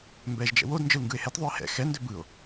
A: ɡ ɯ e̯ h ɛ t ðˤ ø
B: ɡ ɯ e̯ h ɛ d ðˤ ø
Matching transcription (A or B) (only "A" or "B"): A